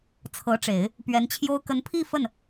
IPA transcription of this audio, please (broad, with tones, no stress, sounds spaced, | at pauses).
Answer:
t͡sʰ ɤ˧˥ ʈ͡ʂ e˨˩˦ ɪ̯ | p ɥ ɛ˧˥ n t͡ɕʰ j o˥ ʊ̯ k ə˧˥ n pʰ i˥˧ f ə˥˩ n